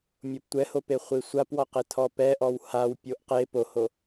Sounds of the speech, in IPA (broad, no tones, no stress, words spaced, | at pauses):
mʲoptʷɛhope χʷisʷapwɔqe tʰɔpɛʔɔw haw pʲoʔqe poho